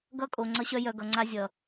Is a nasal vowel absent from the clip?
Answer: yes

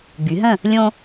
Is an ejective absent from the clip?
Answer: yes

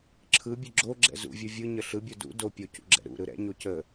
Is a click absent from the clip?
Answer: no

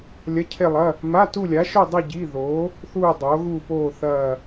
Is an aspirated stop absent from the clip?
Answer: no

